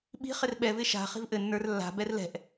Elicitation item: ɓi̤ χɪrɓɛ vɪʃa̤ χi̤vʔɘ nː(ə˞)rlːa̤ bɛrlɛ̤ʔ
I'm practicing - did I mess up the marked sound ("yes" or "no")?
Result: no